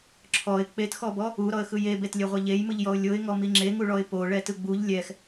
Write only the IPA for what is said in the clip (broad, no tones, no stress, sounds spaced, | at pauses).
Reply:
ǁʰ ɔ ɪ̯ k͡p e t x ɔ b ɔ | u ɾ ɔ ə̯ x ɯ j e b e t lʲ e ʁʷ ɛ ʎ e j m ɯ ʎ j ɔ ʊ̯ lʲ o ɪ̯ ŋ ɔ m i ŋ͡ǁ e ŋ u ɭ ɔ ɪ̯ p o ɭ ɛ t ɯ ɡ͡b u ʎ lʲ ɛ x